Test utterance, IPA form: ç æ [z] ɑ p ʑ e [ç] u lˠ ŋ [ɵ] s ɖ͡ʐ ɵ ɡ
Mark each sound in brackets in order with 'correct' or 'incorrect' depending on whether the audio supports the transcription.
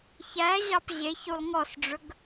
incorrect, correct, incorrect

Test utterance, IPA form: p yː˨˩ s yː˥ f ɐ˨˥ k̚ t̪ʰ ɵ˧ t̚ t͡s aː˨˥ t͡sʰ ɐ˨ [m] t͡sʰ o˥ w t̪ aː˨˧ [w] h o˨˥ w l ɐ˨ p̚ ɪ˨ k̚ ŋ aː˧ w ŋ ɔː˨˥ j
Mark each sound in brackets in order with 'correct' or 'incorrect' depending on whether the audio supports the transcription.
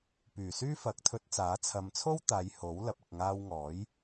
correct, incorrect

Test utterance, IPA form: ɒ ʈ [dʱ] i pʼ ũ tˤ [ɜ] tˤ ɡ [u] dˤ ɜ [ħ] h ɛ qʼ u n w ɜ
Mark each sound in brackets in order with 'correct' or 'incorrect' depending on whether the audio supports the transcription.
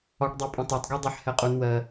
incorrect, correct, correct, correct

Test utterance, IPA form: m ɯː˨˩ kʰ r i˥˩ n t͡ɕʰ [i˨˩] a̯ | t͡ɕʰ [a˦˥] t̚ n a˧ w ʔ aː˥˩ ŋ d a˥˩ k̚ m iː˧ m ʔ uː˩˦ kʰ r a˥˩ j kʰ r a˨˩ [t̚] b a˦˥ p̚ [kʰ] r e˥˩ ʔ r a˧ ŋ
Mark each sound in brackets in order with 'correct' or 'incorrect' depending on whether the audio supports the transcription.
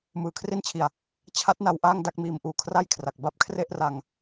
incorrect, correct, incorrect, correct

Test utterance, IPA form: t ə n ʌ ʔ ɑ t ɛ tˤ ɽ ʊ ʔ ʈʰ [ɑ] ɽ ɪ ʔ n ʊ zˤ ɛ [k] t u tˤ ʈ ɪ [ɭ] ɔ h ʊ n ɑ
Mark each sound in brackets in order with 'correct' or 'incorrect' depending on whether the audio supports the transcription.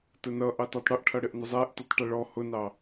incorrect, incorrect, correct

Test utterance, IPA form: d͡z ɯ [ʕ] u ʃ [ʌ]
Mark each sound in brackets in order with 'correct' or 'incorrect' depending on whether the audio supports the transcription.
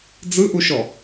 incorrect, incorrect

